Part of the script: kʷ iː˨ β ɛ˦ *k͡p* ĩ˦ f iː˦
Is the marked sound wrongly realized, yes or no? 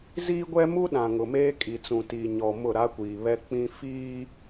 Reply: no